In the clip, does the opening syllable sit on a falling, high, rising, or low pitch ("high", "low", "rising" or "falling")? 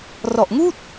low